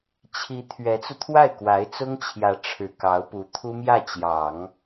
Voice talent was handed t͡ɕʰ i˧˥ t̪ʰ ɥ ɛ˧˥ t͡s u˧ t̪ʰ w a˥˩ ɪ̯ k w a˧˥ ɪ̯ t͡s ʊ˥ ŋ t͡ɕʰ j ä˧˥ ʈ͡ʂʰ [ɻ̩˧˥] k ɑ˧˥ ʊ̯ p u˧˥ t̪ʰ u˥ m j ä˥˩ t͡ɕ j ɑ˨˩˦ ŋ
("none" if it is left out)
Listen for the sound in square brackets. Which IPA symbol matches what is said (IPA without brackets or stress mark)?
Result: ɻ̩˨˩